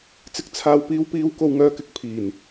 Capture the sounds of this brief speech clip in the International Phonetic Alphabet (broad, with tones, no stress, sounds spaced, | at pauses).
t͡s ɪ˨ k̚ t͡sʰ aː˨ w p iː˨˧ w p iː˨˧ w k o˧ w ŋ œː˧ k ɪ˨˥ k̚ pʰ iː˨˩ n